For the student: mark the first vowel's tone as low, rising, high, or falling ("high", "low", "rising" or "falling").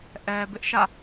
low